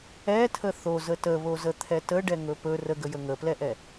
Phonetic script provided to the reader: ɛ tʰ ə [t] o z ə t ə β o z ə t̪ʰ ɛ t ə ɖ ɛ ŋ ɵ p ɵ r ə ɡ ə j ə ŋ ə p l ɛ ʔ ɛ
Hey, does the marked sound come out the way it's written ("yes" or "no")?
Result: no